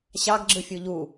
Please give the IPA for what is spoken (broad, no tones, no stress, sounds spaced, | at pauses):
ɕ ɑ ɡ ɡ͡ǁ ɯ fʲ u ʎ u